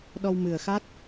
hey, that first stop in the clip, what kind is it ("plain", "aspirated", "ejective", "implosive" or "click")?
implosive